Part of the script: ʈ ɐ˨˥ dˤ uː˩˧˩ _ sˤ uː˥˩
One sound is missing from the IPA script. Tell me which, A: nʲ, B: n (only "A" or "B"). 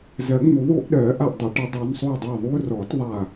B